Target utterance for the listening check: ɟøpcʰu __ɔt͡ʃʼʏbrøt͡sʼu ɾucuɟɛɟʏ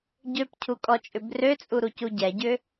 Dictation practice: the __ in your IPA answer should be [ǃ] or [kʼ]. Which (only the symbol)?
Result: kʼ